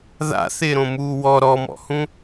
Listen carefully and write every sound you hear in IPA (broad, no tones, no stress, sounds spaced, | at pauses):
ð a̰ θ ɪː ɾ õ m uː w ɔ ɾ ɔ m ɔ̰ h ũ